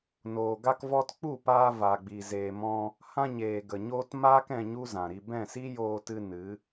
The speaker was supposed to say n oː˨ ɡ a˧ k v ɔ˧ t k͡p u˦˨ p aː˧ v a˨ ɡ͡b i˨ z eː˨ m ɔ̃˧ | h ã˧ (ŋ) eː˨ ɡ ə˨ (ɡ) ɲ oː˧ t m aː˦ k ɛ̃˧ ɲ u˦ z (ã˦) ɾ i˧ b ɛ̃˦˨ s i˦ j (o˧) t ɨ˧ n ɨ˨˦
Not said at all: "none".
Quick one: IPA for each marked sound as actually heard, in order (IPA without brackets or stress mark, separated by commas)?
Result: ɲ, none, ã˨, oː˧